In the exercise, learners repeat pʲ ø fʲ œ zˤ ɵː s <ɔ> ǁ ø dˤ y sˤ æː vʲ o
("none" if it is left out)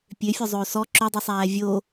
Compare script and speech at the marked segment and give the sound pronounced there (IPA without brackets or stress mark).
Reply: ɔ